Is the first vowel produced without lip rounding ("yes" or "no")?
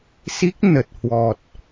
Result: yes